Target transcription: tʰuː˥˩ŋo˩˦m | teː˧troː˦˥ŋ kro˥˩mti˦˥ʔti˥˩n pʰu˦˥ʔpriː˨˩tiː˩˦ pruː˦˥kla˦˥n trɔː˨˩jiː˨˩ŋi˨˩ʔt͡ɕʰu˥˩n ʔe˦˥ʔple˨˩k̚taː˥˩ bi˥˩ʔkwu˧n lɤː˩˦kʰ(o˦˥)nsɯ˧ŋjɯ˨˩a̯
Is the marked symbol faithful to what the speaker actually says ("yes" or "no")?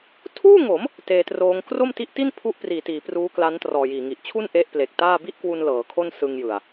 no